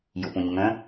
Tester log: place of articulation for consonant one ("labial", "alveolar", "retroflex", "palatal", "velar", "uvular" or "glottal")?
palatal